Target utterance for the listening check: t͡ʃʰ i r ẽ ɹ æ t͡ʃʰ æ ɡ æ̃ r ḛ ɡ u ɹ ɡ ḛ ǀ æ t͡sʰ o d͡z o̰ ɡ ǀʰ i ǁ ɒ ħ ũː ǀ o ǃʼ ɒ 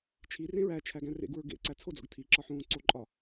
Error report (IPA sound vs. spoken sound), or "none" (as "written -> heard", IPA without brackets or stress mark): ǀʰ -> tʰ